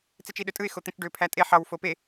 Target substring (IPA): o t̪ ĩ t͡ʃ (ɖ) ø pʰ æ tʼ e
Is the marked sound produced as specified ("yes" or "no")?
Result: yes